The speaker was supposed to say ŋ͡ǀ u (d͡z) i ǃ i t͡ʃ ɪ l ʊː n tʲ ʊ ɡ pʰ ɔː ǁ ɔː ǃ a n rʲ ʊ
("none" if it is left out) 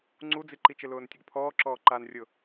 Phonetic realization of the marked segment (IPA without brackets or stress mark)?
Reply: d͡z